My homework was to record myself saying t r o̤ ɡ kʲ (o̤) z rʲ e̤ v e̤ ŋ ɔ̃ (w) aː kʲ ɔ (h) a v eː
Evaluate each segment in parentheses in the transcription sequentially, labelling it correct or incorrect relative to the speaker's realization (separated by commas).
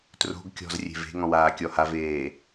incorrect, correct, correct